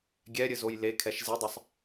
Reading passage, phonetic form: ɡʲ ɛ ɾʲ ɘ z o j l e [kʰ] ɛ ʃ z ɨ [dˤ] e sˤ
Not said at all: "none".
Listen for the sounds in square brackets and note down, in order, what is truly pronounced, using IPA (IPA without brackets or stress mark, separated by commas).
kʰ, dˤ